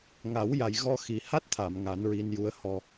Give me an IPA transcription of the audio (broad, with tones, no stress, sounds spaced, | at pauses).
ŋ a˨˩˦ w j a˨˩ j ɣ ɔ˧ x i˨˩ h a˦˥ t̚ t̪ʰ a˨˩˨ m ŋ a˨˩˦ n ɹ i˧ n j u˧˥ ə̯ h ɔ˧